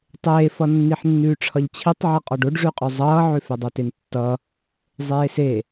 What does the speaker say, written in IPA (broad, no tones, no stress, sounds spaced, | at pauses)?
tˤ eː f ʌ nː i ħ nː ʉː ʈ͡ʂʰ ʌ ʎ t͡ɕʰ i tˤ ʕ ʌ qʼ ɔ ɖ o ɖ ʐ ʉ qʼ ø zˤ ʌː ʕ ø f e dˤ o t e n tː ʌ | zˤ eː s e